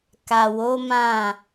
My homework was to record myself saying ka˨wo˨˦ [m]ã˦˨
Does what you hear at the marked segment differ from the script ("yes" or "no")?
no